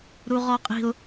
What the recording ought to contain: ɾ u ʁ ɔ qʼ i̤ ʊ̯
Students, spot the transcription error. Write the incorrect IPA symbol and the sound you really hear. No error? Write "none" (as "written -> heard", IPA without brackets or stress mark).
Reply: none